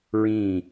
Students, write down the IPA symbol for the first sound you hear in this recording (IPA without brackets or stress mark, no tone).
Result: ɹ